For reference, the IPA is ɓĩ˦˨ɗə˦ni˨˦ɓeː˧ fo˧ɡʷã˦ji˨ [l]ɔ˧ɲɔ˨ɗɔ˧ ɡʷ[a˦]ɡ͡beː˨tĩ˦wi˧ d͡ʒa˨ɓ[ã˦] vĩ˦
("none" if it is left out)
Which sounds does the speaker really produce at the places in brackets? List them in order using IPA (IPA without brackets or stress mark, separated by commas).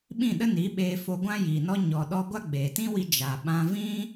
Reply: n, a˦, ã˦